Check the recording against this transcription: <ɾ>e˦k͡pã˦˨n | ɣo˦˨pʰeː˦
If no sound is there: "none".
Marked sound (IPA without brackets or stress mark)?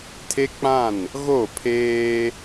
tʰ